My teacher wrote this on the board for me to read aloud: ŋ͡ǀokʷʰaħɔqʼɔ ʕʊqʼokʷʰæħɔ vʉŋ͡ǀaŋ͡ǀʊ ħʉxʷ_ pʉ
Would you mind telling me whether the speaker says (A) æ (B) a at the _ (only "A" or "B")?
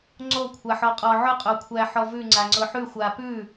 B